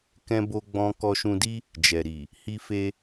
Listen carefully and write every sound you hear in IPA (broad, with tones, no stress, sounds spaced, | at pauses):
k ɛ̃˦ b o˦ ɡ͡b ɔ̃˦ k ɔ˧ ʃ ũ˧ d i˦ | d͡ʒ ɛ˨ ɾ i˨ | h i˧ f e˧